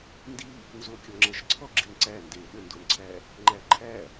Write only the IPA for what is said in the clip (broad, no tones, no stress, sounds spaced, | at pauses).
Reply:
n d i | n z o kʲ ɔ ŋ͡ǁ ɛ ʃ ǀʰ ɔ ɡ͡ǁ i n ǀ æ n d e ɗ ə n d o n ǀʰ æ | ŋ͡ǃ æ ǃʰ æ